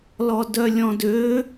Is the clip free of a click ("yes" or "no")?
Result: yes